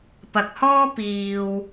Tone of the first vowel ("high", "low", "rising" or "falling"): low